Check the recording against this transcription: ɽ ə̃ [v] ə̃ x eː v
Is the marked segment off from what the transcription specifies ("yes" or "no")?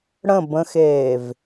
yes